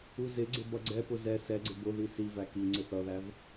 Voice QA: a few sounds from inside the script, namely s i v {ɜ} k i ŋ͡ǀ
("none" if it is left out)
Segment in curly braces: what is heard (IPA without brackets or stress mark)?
æ